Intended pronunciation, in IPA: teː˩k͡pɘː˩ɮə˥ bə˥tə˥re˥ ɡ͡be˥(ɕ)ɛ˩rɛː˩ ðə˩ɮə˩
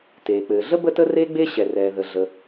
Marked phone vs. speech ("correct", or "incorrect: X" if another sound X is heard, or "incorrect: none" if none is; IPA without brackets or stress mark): correct